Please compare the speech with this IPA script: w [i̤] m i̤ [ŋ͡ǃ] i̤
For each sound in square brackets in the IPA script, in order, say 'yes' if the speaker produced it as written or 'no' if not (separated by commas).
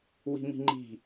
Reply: yes, yes